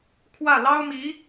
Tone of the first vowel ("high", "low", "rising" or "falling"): falling